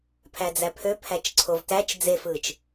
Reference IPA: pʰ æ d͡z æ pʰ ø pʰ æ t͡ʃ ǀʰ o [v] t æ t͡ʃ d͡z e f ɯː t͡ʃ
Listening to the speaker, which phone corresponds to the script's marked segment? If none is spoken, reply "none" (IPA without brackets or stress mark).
v